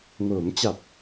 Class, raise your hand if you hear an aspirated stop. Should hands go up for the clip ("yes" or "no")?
no